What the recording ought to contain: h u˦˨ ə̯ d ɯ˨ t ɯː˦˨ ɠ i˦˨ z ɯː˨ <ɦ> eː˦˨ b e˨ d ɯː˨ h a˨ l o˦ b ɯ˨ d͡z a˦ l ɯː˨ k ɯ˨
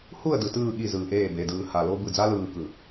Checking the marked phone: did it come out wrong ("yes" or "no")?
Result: yes